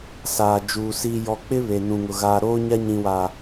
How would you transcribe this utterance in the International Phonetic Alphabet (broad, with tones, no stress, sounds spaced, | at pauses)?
s aː˨ d͡ʒ uː˨ s i˨ j ɔ˨ k͡p ɪ˦ β e˨ n ũ˨ ŋ ʊ˨ ɣ aː˨ ɾ oː˦ ɲ a˦ ɲ ĩ˨ w a˨